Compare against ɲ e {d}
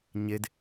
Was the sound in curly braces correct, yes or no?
yes